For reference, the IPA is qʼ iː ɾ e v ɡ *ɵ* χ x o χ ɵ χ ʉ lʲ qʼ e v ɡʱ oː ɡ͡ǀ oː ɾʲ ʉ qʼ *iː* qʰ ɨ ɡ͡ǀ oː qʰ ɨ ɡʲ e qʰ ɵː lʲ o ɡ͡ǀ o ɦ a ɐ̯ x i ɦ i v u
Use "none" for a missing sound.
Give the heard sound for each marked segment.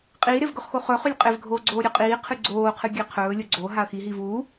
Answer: ɵ, iː

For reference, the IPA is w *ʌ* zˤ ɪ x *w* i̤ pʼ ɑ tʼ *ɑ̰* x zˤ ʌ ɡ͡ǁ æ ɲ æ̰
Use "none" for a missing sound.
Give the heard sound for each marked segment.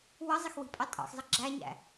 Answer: ʌ, w, ɑ̰

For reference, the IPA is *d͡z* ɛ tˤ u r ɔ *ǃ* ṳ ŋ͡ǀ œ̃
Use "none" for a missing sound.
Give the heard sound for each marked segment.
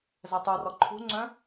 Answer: z, ǃʰ

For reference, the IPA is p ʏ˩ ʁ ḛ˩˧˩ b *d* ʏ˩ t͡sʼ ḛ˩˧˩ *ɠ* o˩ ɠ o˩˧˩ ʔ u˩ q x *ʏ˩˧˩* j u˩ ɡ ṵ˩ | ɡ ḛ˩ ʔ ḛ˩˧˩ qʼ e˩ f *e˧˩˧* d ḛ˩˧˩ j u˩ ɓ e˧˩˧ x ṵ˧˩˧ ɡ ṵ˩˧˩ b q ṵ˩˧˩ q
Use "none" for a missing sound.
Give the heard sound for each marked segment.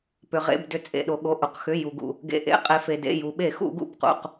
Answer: d, ɗ, ʏ˩˧˩, e˩

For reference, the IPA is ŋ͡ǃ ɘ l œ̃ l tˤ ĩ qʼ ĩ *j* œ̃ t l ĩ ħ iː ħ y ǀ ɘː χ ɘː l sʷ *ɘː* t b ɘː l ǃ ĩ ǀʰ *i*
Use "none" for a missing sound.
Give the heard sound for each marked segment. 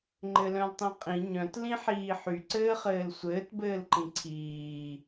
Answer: ɲ, ɘː, iː

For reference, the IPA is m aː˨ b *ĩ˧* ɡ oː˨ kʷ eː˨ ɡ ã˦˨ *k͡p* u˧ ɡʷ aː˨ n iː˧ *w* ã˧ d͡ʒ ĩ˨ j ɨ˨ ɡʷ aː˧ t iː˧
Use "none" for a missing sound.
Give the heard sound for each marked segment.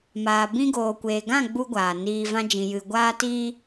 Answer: ĩ˧, ɡ͡b, v

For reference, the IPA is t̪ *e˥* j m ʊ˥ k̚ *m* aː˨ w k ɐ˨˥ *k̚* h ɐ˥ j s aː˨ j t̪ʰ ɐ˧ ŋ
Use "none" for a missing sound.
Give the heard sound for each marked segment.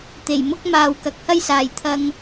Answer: e˨˩, m, k̚

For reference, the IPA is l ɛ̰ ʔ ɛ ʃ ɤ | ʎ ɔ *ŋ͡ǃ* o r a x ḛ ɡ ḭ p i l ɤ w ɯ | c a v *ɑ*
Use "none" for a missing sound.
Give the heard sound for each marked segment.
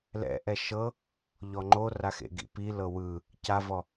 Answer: ŋ͡ǃ, ɔ

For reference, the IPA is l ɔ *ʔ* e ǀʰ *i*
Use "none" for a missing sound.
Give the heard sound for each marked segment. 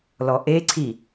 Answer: ʔ, i

